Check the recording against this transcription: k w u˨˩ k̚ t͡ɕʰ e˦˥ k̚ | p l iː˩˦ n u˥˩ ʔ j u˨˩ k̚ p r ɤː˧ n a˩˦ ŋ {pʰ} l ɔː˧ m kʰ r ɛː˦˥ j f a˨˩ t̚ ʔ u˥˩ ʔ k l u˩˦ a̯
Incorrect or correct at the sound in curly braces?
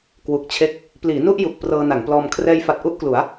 incorrect: p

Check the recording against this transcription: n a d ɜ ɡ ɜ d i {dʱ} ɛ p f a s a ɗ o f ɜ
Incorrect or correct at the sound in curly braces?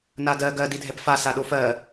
correct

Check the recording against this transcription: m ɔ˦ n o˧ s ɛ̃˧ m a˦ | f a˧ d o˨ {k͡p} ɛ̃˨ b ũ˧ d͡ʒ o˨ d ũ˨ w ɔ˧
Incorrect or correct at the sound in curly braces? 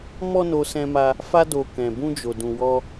incorrect: k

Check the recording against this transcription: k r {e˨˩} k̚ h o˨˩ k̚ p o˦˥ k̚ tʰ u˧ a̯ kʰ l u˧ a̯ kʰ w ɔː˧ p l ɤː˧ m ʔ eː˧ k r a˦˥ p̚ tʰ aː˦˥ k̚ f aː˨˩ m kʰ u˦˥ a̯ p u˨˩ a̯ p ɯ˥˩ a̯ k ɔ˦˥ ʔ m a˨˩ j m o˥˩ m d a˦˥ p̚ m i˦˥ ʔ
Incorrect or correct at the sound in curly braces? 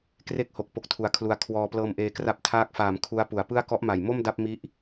incorrect: e˥˩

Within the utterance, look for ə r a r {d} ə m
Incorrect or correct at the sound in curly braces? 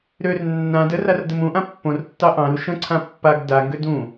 correct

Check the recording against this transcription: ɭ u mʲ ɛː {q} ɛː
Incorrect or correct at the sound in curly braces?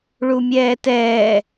incorrect: t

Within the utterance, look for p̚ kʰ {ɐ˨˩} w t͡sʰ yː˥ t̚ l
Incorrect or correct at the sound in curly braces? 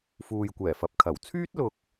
correct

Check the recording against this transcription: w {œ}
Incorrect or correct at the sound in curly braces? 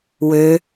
incorrect: ø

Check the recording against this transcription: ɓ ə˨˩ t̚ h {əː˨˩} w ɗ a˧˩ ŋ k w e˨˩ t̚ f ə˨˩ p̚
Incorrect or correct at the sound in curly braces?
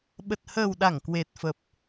correct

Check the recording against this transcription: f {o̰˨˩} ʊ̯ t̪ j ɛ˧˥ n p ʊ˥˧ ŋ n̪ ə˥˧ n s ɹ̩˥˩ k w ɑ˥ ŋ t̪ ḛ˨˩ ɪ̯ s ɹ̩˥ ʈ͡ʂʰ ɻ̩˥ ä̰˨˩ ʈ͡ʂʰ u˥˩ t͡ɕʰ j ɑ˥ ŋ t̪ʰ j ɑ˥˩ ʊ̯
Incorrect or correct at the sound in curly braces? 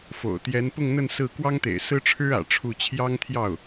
correct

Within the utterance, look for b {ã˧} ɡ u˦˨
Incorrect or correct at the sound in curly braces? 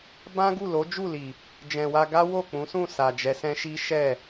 incorrect: ã˦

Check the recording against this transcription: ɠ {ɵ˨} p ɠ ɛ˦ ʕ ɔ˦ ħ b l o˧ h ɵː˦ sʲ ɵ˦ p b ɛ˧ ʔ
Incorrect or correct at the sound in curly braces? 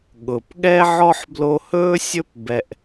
incorrect: ʊ˨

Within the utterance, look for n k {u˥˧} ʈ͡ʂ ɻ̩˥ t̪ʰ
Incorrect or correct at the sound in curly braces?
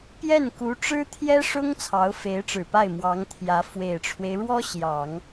incorrect: u˧˥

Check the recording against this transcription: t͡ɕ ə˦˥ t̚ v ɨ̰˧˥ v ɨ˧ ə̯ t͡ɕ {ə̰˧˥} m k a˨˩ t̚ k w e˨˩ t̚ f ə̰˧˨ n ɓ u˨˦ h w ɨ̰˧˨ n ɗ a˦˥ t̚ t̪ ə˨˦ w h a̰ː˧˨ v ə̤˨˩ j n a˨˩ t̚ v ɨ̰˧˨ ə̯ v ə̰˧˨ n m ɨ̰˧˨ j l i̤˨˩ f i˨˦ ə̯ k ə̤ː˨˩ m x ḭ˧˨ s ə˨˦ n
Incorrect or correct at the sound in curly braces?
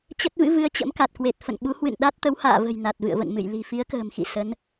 correct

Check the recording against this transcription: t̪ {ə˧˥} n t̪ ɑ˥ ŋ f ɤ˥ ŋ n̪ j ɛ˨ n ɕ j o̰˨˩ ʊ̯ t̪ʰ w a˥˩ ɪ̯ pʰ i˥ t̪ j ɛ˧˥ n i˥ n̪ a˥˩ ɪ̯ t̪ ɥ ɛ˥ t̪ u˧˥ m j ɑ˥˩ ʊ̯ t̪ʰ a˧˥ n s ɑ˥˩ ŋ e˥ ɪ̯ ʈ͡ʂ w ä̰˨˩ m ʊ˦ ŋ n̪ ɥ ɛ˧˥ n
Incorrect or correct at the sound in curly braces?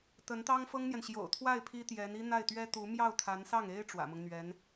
correct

